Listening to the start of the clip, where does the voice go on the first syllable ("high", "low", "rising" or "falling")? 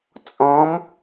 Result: rising